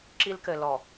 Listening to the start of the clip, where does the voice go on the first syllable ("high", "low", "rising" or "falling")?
high